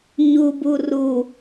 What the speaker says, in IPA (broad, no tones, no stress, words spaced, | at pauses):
ɲubu ru